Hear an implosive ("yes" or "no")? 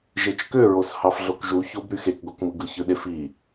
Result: yes